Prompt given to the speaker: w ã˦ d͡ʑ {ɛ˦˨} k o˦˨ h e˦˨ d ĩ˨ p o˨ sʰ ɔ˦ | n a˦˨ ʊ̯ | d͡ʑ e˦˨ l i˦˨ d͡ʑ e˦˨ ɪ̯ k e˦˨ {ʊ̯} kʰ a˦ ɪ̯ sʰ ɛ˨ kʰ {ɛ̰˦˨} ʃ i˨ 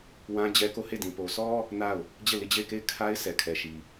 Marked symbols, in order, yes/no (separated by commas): no, no, no